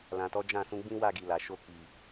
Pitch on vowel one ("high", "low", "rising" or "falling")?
low